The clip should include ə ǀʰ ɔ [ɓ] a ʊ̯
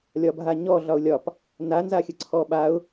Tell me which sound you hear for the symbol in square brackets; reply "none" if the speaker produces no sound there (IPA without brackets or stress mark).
ɓ